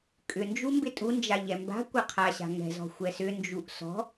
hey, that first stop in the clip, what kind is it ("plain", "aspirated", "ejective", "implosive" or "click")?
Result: ejective